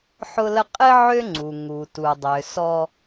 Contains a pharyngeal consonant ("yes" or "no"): yes